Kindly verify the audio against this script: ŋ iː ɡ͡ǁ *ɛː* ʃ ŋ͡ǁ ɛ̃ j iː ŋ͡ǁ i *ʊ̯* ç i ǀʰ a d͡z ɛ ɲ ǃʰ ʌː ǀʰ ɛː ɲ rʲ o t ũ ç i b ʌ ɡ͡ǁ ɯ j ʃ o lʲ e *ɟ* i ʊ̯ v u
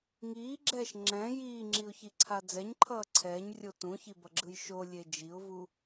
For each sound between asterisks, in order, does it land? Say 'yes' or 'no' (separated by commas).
yes, yes, no